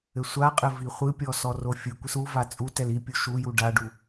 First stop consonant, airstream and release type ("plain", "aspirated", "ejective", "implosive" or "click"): ejective